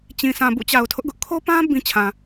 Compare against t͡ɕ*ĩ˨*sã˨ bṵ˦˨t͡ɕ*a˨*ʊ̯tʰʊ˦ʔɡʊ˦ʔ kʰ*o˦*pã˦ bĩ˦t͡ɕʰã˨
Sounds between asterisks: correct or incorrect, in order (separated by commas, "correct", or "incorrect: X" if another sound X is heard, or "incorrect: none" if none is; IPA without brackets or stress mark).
correct, correct, correct